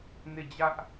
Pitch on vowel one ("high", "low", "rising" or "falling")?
falling